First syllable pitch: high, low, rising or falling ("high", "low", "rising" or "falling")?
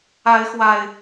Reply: rising